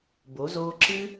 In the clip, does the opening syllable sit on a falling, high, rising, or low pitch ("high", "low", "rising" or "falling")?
rising